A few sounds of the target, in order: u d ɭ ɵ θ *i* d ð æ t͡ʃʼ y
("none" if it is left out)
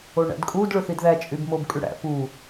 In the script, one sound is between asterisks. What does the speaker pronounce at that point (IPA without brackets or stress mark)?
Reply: i